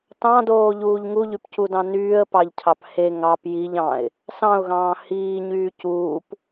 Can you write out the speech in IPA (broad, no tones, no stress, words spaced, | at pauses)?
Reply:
tɑ̃doːʎuːʎ ŋuʎypcudɑ̃ nyːə̯pɑʎcʰɑp he ŋɑp jiʎ ɑ̃ɪ̯ | sɑ̃ʊ̯ɣɑ̃ː hiːɲyː cuːp